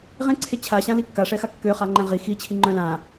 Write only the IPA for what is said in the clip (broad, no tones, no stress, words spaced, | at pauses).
ʁẽǀʰe t͡ɕʰaɕãli kːaʂɛxa kːøχaŋ͡ǃɛ̃ ʁi xit͡ɕʰiŋ͡ǃœ̃ lã